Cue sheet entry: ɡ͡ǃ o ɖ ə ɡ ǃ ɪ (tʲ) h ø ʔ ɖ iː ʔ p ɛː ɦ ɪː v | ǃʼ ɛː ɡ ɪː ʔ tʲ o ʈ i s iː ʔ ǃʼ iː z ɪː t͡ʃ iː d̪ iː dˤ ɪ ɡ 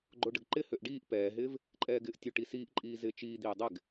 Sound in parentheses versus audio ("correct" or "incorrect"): incorrect